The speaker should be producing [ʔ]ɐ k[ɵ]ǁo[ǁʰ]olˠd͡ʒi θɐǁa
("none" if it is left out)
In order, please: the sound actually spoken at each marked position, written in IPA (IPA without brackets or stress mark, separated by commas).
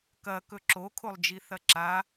k, ɵ, kʰ